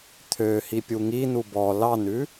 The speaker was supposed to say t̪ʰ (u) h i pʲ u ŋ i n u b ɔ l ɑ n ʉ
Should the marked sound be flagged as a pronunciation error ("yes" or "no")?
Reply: yes